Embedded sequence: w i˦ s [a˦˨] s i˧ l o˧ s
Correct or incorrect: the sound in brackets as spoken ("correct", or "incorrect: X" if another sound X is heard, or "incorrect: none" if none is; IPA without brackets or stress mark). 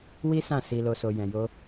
incorrect: ã˦˨